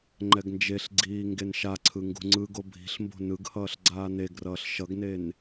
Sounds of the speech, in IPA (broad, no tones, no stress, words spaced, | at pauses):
ŋ͡ǃɛɡnd͡ʒeɬɡ͡ǀiː ŋɡenʃaǀʰɯ ŋɡṳŋ͡ǀɯɡo bʱi̤ɬmbo̤ nɯɡhʌːɬ ɡ͡ǀaːneɡrʌːɬ ʃʌɡnen